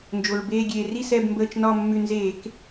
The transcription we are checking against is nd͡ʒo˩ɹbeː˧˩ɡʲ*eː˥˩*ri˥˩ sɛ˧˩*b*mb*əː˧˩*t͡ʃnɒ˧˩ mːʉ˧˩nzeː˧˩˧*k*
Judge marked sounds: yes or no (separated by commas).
no, yes, yes, yes